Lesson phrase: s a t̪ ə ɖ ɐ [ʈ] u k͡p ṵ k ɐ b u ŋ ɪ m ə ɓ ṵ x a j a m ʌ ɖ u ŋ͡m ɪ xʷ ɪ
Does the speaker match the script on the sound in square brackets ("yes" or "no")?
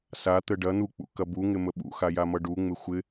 no